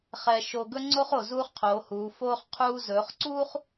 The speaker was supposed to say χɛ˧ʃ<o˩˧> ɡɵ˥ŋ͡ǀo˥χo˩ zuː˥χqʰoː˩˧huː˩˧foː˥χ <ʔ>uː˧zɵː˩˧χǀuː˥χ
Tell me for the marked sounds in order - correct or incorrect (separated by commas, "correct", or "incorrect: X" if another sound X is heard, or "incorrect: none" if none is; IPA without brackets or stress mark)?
incorrect: o˧, incorrect: qʰ